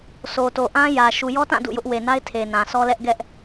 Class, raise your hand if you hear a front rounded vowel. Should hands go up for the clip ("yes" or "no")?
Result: no